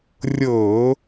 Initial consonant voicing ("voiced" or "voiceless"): voiced